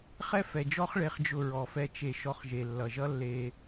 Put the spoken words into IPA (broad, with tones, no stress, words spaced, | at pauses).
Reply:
χɛ˦fɛ˨d͡ʒɔ˦χ ɭe˧χd͡ʒʊ˧ɹɔ˨fɛ˧ t͡ʃe˧ ʃɔ˦χʒe˧ lːʌ˨ʒʌ˦ lːe˧